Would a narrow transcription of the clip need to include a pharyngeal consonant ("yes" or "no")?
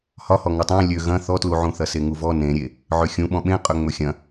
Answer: yes